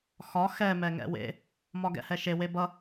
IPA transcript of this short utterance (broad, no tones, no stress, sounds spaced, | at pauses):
x ɒ x ɛ m ɛ ŋ ɛ̰ w ḛ | m ɒ ɡ ɛ̰ h ɛ ʃ e w e b ʌ